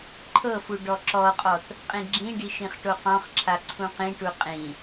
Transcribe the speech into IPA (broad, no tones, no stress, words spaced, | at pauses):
ǃʰɤfu ɖɔǁɔqʼɔt | qʼĩɡ͡ǁĩɖi ʃĩχʈoqɔ̃χǁʰa ǀʰũqĩʈu qʼĩ